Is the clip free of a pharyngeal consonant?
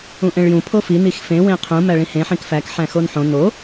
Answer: no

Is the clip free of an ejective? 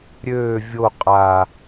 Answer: no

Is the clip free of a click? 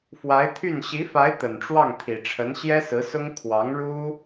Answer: yes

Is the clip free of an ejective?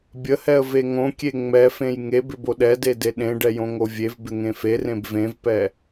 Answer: yes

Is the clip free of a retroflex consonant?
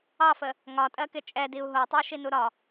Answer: yes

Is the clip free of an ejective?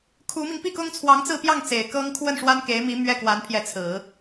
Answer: yes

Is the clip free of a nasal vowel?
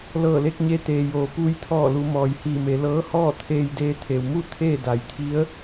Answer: yes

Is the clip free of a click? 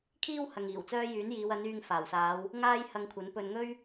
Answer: yes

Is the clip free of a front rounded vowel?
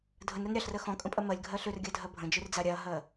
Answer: no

